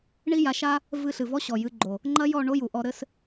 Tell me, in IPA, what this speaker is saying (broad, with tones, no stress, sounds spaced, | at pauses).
ɳ i˦ j a˨˦ ʃ a˦ | v ɨ˧ ɬ ɨ˨ v ɔ˦ ɕ ɔ˨ j ɨ˨˦ ɡ͡ǃ o˨ | ŋ͡ǃ ɐ˦ j ɔ˦˨ ɳ o˦ j u˨ ʔ ɔ˧ ɾ ɘ˦ s